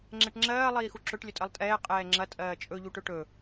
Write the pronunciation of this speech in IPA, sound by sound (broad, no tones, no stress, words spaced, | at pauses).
ŋ͡ǁɛʈŋ͡ǁɜː lˠiːxuǁɵʈ lʲɵtʼɜlˠtʼɛː qʼɛːŋ͡ǁɐ tʼɜːt͡ʃʼɵ ʎuʈɵʈɵ